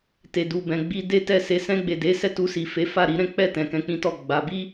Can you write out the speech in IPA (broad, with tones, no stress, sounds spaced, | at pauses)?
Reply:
t e˨ d u˨ b ɛ̃˨ ɡ͡b i˧ d e˦ t ɛ˦˨ s e˨˦ s ɛ̃˧ ɡ͡b e˨ d e˨˦ s ɛ˦˨ t u˧ s i˨ f e˨˦ f a˦˨ ɾ i˨˦ ɾ ɛ̃˦ k͡p ɛ˦˨ t ɛ̃˨ k ɛ̃˧ k͡p ĩ˦ t ɔ˦˨ ɡ͡b a˨˦ b i˦